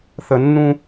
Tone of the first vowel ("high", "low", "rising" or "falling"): low